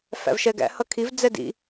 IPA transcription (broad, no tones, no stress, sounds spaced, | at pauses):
f æ̰ v ʃ ɛ ɡ æ̰ h ʌ kʰ i v d͡z ɛ d ḭ